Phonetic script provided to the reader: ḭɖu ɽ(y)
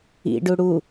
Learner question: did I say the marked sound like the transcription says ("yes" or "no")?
no